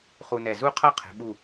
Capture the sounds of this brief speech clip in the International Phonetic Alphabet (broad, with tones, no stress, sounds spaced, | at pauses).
χ u˧ n ɛ˧˩ z u˥˧ qʰ ʌ˥˧ qʰ ɛ̤˩˧ ɓ u˧˩